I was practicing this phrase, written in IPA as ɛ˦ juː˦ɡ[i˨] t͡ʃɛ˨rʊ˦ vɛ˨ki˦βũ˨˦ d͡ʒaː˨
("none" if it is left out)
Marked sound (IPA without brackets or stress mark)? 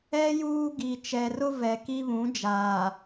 i˨